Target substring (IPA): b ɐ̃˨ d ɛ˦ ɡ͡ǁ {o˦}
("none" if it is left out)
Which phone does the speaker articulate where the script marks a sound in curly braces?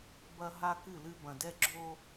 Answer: o˦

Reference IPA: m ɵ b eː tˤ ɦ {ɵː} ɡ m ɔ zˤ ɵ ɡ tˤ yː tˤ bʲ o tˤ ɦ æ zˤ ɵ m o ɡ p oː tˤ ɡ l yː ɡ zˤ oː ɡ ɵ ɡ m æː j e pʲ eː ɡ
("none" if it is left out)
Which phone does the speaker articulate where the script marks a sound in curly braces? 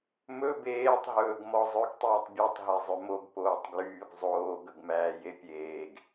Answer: ɵː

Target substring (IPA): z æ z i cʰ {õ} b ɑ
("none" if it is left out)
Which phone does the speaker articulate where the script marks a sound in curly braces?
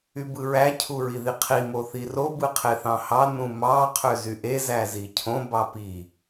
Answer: õ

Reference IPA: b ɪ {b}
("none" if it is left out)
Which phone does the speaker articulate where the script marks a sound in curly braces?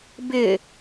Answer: none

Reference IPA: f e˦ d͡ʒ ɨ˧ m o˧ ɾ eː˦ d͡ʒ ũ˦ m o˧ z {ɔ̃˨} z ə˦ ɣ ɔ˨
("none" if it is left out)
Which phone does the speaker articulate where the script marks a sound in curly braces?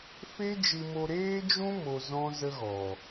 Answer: ɔ̃˦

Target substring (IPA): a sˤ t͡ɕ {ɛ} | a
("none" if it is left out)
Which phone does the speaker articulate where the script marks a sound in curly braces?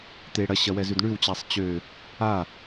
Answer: ø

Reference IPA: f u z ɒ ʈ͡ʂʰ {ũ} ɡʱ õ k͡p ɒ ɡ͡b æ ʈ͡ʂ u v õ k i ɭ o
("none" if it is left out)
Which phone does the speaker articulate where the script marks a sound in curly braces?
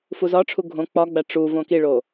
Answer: u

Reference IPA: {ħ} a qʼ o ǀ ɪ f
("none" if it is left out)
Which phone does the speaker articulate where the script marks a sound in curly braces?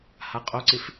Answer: h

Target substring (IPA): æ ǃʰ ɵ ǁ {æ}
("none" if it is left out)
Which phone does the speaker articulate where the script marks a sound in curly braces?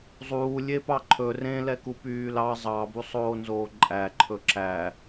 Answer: æ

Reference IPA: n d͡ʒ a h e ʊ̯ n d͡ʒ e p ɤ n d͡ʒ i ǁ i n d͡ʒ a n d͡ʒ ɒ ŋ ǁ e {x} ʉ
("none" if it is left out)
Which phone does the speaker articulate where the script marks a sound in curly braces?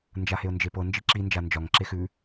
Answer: x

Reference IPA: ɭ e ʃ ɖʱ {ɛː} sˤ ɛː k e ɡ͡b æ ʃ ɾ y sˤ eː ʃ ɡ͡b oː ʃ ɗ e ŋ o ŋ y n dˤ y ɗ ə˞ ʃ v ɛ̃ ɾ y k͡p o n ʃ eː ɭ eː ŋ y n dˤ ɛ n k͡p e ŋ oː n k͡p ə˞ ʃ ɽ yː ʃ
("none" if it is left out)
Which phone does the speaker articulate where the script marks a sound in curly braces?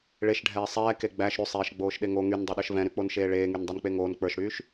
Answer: ɛː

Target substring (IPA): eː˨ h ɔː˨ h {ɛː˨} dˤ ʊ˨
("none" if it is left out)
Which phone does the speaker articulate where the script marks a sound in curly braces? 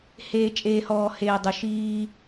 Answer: eː˨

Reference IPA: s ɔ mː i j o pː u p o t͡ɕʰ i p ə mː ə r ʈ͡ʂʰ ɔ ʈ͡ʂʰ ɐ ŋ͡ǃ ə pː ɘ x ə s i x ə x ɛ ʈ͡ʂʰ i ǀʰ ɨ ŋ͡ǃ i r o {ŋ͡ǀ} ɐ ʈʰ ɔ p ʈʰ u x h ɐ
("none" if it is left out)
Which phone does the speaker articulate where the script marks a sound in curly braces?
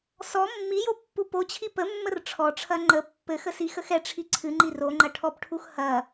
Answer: ŋ͡ǃ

